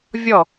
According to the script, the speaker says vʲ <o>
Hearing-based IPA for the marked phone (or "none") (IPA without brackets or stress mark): ɔ